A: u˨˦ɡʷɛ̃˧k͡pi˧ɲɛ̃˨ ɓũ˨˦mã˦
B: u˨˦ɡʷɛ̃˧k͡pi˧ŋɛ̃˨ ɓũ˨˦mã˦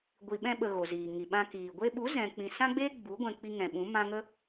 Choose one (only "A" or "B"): B